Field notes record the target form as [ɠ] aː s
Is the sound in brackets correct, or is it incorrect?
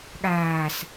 correct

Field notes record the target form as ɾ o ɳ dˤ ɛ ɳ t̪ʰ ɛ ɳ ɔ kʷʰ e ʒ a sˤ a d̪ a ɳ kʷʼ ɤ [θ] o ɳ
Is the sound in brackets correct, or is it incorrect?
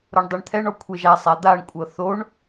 correct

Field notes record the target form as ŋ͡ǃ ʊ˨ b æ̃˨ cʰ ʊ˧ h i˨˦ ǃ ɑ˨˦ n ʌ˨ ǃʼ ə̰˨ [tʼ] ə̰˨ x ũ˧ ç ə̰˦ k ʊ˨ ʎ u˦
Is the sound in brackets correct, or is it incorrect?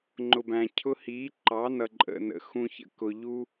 incorrect: n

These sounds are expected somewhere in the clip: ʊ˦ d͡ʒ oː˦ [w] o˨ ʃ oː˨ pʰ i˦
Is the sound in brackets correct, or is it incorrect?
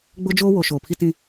correct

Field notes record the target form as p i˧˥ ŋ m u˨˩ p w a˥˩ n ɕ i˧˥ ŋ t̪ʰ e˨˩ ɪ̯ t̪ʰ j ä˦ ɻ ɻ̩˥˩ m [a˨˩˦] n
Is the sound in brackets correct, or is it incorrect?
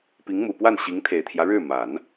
correct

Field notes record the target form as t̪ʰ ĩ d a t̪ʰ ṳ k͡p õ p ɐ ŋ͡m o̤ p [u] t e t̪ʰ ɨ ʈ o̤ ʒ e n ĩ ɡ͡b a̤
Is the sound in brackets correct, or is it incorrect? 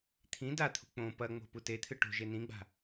correct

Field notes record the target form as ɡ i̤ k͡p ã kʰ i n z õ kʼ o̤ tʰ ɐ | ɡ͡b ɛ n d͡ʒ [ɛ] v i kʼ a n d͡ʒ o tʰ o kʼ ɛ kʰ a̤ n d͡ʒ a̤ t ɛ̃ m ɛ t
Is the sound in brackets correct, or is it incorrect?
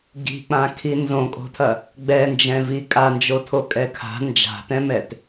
incorrect: ɛ̃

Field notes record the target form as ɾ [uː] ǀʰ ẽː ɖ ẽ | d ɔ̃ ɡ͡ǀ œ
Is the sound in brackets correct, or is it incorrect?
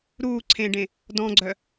correct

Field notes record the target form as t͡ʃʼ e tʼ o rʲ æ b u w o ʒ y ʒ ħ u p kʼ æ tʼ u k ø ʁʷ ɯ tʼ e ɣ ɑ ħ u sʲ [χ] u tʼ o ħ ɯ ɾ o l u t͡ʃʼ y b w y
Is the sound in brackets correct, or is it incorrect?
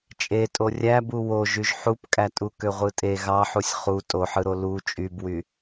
correct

